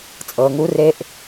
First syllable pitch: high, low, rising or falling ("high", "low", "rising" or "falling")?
low